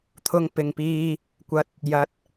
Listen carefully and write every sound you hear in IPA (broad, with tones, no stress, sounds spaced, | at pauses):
t̪ʰ ʊ˧ ŋ p ɪ˨ ŋ p iː˧ | kʷ ɐ˨˥ t̚ | j ɐ˨˥ t̚